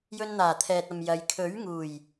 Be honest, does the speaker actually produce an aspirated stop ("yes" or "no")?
yes